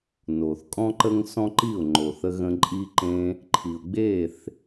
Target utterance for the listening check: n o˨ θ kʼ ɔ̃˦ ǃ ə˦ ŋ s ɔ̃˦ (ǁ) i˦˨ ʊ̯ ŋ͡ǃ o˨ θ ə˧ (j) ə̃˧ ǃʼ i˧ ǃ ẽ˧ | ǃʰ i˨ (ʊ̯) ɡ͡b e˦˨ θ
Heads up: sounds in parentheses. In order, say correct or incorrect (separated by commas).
incorrect, incorrect, correct